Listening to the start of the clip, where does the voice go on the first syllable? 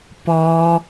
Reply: high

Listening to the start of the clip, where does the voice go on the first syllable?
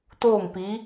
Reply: falling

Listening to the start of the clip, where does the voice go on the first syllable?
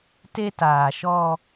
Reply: high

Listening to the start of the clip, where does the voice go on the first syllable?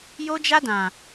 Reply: high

